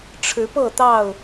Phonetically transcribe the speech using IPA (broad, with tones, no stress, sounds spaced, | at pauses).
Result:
ʈ͡ʂʰ ɻ̩˨˦ p ɤ˥˨ t̪ ɑ˥˨ ʊ̯